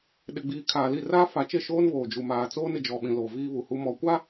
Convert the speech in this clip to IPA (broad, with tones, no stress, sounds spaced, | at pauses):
ɗ ɪ˨ ɡ͡b iː˨ kʰ aː˨ l i˦˨ r aː˦ f a˨˦ t͡ʃ e˦˨ ʃ oː˦ n β oː˨ d͡ʒ u˨ m aː˨ t͡s oː˦ n ɪ˨ d͡ʒ ɔ˨ ɓ ĩ˨ l oː˨ v iː˦ β u˨ h u˦ m ɔ˨ kʷ a˦